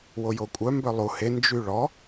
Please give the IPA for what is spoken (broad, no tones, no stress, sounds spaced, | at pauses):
w o j o kʷʼ œ m b œ lˠ u h e n d͡ʒ y ɭ ɔ